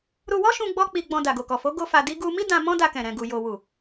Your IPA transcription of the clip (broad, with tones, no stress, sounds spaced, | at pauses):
ɾ u˧ w ɔ˦ ʃ ũ˧ ɡ͡b ɔ˦ k͡p i˧ ɡ͡b ɔ̃˧ d a˨ ɡ o˨ k ɔ˨ f o˨˦ ɡ o˦ f a˧ d i˦ ɡ u˧ m i˦ d ã˧ m ɔ̃˦ d a˧ k ɛ̃˨ ɾ ɛ̃˨ ɡ u˨ j o˨ w u˨